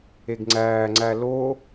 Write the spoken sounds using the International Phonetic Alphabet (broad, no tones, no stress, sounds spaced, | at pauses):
e ɡ ŋ͡ǀ æː ŋ͡ǀ æ l o